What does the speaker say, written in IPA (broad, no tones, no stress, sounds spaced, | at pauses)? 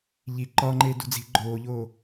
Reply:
ʎ i ǃ ɒ ŋ͡ǃ e d ṳ d͡z i̤ ɡ͡ǃ oː ʎ oː